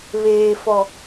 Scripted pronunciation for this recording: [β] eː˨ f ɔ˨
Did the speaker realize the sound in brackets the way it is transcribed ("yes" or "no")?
yes